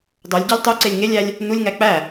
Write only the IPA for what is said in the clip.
dˤ o lʲ ɟ æ lʲ tˤ o ǀ e lʲ ŋ e lʲ æ lʲ | n u lʲ ŋ æ k͡p æ

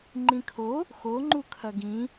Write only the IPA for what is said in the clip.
ŋ͡ǃ ĩ kʰ o | x o ŋ͡ǃ u kʰ ɐ ɡ ĩ

